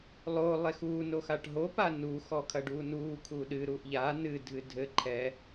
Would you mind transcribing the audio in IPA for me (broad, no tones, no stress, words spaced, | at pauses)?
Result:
lˠo lˠexuː noxaʈɦo panu xɔkʰɐɖuːnuː kʰuɗɨ ɾuʔʎa nɨ dʱɨdʱɘ ǃʰɛ